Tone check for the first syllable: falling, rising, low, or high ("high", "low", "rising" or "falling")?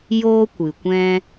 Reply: high